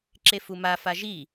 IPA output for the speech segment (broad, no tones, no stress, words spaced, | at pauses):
ǁefuma faʒi